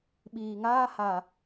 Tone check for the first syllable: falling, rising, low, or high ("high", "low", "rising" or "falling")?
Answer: low